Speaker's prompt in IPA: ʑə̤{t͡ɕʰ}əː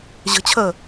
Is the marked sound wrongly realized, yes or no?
no